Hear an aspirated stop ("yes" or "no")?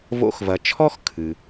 yes